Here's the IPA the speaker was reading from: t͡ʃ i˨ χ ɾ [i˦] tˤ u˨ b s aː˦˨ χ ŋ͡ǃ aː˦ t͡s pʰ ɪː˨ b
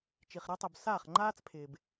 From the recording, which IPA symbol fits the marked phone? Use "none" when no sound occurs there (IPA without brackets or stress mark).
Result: i˦